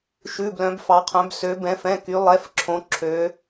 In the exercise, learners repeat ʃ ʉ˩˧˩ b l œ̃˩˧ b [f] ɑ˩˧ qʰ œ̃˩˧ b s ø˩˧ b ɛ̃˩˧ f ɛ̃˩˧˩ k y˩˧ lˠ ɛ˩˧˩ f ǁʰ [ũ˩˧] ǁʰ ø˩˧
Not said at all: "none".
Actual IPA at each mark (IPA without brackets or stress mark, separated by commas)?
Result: f, õ˩˧